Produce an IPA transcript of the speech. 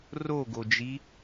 roɡod͡ʒi

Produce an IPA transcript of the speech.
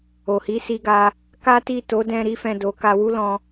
o˨hi˨˦ si˧ɡa˧ | ka˦ti˦˨ to˨˦dɛ̃˧ ɾi˦fɛ̃˦˨do˨˦ ka˧wu˦lɔ̃˧

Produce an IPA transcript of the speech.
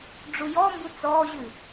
ɖ͡ʐujɔmbu t͡sɔːʑʉ

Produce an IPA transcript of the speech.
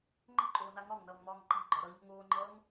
ŋ͡ǃə̤ǃʼoːna ŋɒŋnʌːŋmɒːŋ ǃa̤ɡ͡ǃɒ ɾʌɲo̤ŋ oːŋ͡ǃʌːŋ

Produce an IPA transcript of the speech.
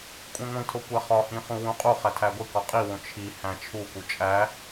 kʷʼĩŋʷĩtʰo kʷæχɒhĩ χũwũqʼuχæ tʰæɡʷikɒ qʼiwõ t͡ʃʰi hæ̃t͡ʃʰuku t͡ʃʼæ

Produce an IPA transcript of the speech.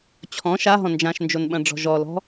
t͡ɕʰɔ̃ ʃaɦɔ̃ nd͡ʒãʃnd͡ʒonɓɐ̃ɖ͡ʐɔ̤ ʒɔlɔ̤

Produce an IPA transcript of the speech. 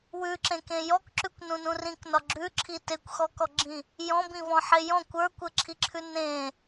wʉǁẽkẽ jɔkǁʉkʷnũnũ rĩknɒ ɡ͡ǁʉǁʰi tekʷxɔkɔɡ͡ǁĩ | jɔ̃bĩvɔ̃ħe jɔ̃kʷ ə˞kʷɘǁʰiǁʰʉ nẽ

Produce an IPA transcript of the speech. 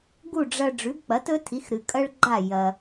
ɡu˥˩ɖ͡ʐɐ˧ ɖ͡ʐʉ˩˥bk͡pɐ˩˥tɵ˥tʰi˩˥x ɾɨ˩ kʼɐ˥ɭɡ͡ǃa˥˩ jɐ˩

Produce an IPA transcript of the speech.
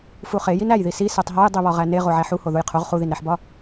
fuχe jinæjði si setˤɦɒj dˤiβɒʁæne ʁoʕæħuho ðujqʰoʁ χuðinɾæħbɒ

